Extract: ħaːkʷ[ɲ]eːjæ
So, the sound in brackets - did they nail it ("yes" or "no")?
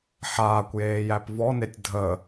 no